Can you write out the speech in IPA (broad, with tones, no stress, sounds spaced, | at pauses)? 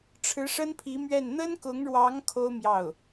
ʈ͡ʂʰ ɻ̩˧˥ ʂ ə˥ n pʰ i˧˥ m ɥ ɛ˥˩ n n̪ ə˥ n k ʊ˧˥ ŋ ɻ w ɑ˧˥ ŋ kʰ o˥ ʊ̯ m j ɑ˥˩ ʊ̯